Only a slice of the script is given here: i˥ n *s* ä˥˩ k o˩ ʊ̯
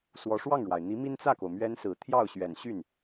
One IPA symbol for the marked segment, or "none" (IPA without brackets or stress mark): t͡s